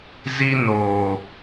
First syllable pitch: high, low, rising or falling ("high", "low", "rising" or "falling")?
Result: high